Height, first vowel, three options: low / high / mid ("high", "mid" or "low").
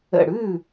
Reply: mid